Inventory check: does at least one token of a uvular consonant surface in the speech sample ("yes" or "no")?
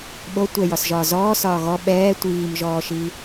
no